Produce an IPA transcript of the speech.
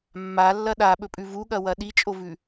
mːalːɐ ɗaɓɵpʼʉ vuɠɐwɐ ɗit͡ʃʼovʉ

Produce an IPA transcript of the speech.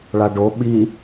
ɭaɖo ɓi

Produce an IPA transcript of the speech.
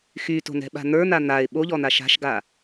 xyto̤nɛ̤ɓa̤ n̪ə˞n̪a n̪aɪ̯ ɓoʎɔn̪a ʃa̤ʃɡa

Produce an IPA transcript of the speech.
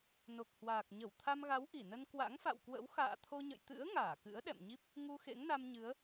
no˨˩k̚hwaː˨˩k̚ɲə˧˩w t̪ʰa˧mɣa˨˦w ʔi˧˩nə˧n kwa̰˧˥ŋfa̰˧˨wkwə̰˧˥w xa̰ː˧˨t̪ʰo˧ɲə̰˧˨j t̪ɨ̰˧˥ə̯ ŋaː˧˩kɨ̰˧˥ə̯ɗɛ̰˧˨mɲi˦˥p̚ | ŋu˧xḛ˧˥ŋna˧mɲɨ˨˦ə̯

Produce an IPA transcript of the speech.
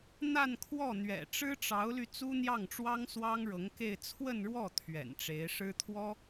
n̪a˥˧nkʰwɔ˥˩n̪ɥɛ̰˨˩ ʈ͡ʂɻ̩˥ʈ͡ʂɑ˧˥ʊ̯ly˧ t͡su˥n̪jɑ˥˩ŋʈ͡ʂwɑ˥ŋswɑ˥ŋ ɻɤ˧˥ŋke˥˧ɪ̯ t͡sʰwə˥˧nɻwɔ˥˩ t̪ʰɥɛ̰˨˩nʈ͡ʂe˧˥ɪ̯ ʂɻ̩˥t̪ʰwɔ˥

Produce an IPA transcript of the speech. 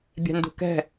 bʲɛ̤ndṳkɛ̤

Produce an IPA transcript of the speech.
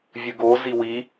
vʲɨɡo ziwi

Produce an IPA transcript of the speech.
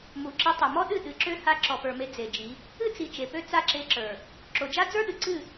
mu˨ǁi˧ tˤø˨mɔ˦ɗɨ˦˨ ɗɨ˨˦ǁø˦ ha˧ ǁɔ˨pə˞˨me˧ d͡ze˨d͡ʒi˨˦ | ɨ˦t͡si˨ t͡ʃe˨pø˦ t͡sa˦˨ǁe˧ǁə˞˨ | ǁo˨d͡ʒa˦ d͡zə˞˦ɗɨ˨ ǀɨ˦˨

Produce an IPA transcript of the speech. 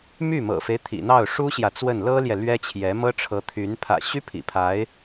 my˥˩mɤ̰˨˩fe˦ɪ̯ t̪ʰḭ˨˩n̪ɑ˥˩ʊ̯ʂu˥ɕjä˨ t͡swə˥˩n lɤ˥ljɛ˨ lɥɛ˥t͡ɕʰjɛ˧˥ mɤ˥ʈ͡ʂʰɤ˧˥t̪ʰy˧˥n pʰä̰˨˩ɕy˥ pʰḭ˨˩pʰa˧˥ɪ̯

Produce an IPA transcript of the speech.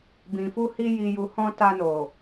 bĩ˨fu˧ hi˧ji˨ ju˨hɔ̃˧ ta˧no˨

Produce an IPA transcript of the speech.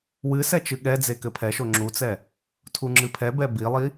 wɨ sɛt͡ʃɨɠɛd͡ze kɘpʰɛʃo ŋ͡ǁut͡sɛ | tʰuŋ͡ǁɨpʰɛbɛ bilˠi

